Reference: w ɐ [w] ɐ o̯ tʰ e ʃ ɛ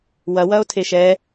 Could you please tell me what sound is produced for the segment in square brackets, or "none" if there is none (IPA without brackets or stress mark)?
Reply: w